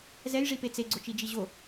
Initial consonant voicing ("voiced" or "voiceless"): voiced